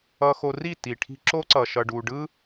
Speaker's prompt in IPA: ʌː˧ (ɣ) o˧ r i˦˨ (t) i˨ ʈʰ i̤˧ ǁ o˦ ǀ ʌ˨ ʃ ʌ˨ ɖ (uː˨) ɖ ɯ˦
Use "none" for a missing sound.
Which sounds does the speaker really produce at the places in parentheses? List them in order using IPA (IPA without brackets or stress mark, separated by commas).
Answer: x, t, uː˨